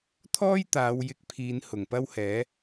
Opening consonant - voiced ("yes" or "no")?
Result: no